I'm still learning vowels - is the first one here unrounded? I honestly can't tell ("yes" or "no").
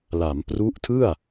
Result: yes